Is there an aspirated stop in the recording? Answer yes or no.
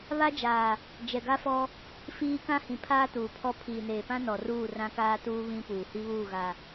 yes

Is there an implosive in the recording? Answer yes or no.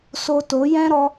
no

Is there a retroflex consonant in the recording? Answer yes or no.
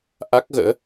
no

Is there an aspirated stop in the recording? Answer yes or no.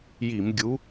no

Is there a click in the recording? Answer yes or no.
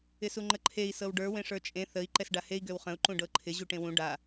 yes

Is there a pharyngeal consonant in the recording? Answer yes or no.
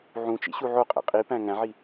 yes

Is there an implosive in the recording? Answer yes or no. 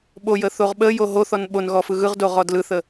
yes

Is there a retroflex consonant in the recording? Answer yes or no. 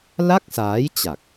no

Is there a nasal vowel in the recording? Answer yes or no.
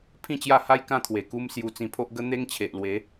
yes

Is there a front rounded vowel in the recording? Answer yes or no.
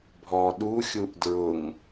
no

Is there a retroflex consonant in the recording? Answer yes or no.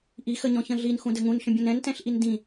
no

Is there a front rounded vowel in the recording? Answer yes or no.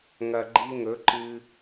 no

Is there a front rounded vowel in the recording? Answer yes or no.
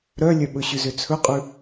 yes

